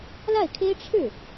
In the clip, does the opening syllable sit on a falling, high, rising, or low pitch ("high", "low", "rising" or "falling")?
falling